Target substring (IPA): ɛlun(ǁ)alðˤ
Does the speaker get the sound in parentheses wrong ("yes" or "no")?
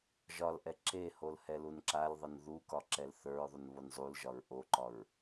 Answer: no